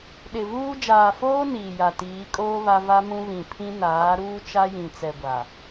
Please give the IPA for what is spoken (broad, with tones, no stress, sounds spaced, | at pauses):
ɗ ɪ˨ v uː˦ d͡ʒ aː˨ f oː˦ n iː˨ j a˨ t iː˨˦ kʼ oː˦ β a˦ v a˦ m ũ˦ β ĩ˨ pʰ ĩ˦ n aː˨˦ ɾ uː˦ t͡ʃ a˦ j ĩ˨ t͡s ɛ˨ ɡʷ a˨